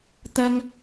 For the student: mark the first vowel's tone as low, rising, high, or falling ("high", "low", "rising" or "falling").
high